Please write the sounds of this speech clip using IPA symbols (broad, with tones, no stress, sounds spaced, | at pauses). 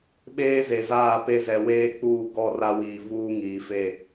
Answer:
ɓ eː˦ z e˨ z aː˦˨ p e˦ z ɛ˨ w eː˦ k͡p uː˦˨ ɡ ɔ˦˨ r a˦ w iː˨ v uː˦ ŋ iː˨ f e˦˨